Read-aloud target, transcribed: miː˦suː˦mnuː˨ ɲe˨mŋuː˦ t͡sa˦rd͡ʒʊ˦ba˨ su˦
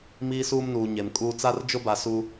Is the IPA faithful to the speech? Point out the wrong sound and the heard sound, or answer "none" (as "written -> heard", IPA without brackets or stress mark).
ŋ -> kʼ